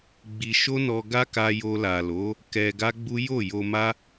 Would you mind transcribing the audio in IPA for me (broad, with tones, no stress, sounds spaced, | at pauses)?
ɡ͡b i˧ ʃ o˦ n ɔ˧ ɡ a˦ k a˧ j o˧ l a˨ l o˨˦ | k ɛ˧ ɡ a˦ ɡ͡b u˦ j o˦˨ j o˧ m a˦